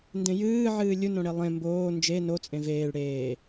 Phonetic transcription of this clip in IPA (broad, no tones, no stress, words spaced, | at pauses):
ndẽjɨː ʕɨːlʲunõ ɽelˠẽ mboː nd͡ʒe not͡sʼẽ veːɭ ɽeː